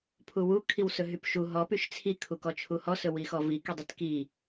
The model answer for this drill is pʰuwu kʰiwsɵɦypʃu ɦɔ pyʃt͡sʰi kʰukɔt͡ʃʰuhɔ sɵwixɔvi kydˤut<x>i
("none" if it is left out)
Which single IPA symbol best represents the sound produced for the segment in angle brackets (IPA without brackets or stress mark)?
k